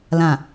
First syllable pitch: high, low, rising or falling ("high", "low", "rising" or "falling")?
low